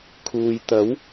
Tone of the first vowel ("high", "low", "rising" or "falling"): low